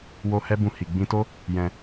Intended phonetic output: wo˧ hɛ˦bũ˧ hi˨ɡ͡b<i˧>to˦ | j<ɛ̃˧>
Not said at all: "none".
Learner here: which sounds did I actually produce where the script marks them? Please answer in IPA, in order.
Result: ĩ˧, ɛ̃˧

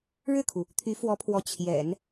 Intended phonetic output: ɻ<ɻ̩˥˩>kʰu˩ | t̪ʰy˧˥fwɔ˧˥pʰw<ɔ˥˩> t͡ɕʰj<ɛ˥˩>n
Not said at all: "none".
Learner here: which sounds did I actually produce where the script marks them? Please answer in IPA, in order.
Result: ɻ̩˥˩, ɔ˧˥, ɛ̰˨˩˦

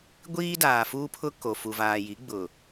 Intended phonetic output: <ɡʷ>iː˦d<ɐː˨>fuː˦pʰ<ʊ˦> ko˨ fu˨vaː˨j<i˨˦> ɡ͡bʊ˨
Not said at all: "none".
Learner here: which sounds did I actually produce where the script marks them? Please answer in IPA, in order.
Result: ɡʷ, aː˨, ʊ˦, i˨˦

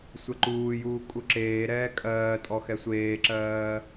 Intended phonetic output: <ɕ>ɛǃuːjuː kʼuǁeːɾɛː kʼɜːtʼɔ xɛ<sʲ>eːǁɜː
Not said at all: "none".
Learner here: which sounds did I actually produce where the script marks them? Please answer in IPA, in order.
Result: sʷ, sʷ

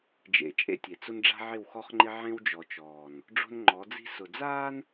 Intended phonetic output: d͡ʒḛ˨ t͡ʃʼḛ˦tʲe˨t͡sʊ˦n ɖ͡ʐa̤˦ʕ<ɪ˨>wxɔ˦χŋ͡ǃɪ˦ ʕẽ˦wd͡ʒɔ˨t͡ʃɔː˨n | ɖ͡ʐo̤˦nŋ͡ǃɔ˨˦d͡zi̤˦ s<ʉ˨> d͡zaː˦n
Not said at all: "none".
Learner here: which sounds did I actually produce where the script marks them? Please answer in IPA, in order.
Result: ɪ˦˨, ʊ˨

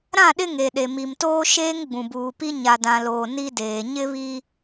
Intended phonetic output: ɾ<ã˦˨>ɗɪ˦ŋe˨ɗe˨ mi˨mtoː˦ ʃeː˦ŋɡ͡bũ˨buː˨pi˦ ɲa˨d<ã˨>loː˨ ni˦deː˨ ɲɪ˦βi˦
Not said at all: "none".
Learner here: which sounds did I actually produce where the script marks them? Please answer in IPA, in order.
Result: ã˦˨, ã˨

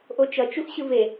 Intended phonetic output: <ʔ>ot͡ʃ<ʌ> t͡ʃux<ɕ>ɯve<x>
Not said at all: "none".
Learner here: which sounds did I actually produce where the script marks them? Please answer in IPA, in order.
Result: ʔ, ʌ, ɕ, none

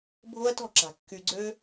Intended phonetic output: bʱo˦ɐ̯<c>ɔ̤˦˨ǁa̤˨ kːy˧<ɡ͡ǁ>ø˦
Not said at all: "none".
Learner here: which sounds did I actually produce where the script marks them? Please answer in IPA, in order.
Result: t, ɡ͡ǀ

